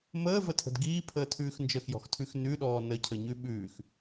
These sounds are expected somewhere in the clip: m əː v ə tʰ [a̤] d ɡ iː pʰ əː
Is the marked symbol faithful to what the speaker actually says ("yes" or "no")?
no